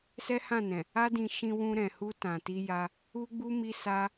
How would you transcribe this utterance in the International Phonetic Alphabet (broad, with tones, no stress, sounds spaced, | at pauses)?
s ɛ˦ h ã˦˨ n ɛ̃˨ | a˦ d ĩ˧ ʃ ĩ˧ w ũ˧ ɾ ɛ̃˨ h u˧ t ã˨ t i˧ j a˧ | u˦ ɡ͡b u˦ m i˦ s a˦